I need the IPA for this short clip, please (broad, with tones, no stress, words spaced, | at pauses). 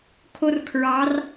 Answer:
kʰo˥rkʰɹɑ˧˥r